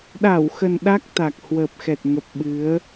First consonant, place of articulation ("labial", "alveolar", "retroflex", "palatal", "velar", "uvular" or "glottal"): alveolar